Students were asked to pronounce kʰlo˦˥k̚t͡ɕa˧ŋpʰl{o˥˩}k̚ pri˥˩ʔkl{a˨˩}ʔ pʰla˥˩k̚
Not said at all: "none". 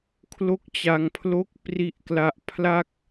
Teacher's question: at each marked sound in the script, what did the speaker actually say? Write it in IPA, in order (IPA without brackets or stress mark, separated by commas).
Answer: o˦˥, a˥˩